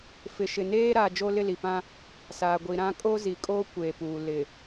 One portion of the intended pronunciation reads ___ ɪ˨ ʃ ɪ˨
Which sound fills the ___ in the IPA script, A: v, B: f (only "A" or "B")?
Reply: B